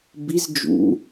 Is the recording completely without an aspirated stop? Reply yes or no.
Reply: yes